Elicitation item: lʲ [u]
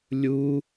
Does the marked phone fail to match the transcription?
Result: no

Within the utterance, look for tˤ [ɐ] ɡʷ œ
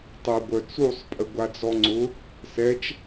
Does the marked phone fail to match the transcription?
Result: no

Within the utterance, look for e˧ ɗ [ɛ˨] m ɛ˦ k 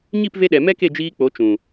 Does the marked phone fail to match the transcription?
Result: no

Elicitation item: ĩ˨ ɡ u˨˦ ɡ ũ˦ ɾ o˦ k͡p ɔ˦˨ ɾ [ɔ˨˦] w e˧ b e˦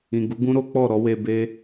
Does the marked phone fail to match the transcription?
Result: no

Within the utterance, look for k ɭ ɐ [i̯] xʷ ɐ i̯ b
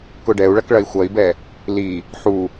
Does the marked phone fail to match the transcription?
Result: no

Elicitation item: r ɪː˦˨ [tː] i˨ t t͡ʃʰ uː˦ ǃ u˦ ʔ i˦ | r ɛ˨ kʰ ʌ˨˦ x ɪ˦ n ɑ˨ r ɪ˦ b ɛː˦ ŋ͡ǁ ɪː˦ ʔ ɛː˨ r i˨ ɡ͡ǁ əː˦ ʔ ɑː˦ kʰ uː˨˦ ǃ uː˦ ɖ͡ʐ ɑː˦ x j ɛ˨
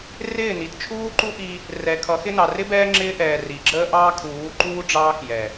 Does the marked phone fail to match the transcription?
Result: yes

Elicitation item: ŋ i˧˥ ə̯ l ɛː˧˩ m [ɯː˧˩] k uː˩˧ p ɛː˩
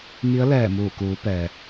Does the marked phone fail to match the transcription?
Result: yes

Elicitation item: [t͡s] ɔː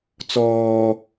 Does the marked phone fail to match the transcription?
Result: no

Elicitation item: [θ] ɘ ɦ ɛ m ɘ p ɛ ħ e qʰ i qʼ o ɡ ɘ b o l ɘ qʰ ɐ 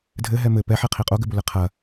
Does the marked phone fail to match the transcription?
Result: yes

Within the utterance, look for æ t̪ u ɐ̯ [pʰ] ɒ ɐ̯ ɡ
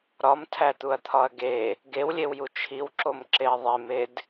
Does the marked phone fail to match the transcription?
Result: yes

